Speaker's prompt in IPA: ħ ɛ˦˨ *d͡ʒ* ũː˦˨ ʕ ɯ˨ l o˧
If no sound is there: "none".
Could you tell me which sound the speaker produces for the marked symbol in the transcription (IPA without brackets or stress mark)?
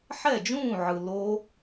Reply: d͡ʒ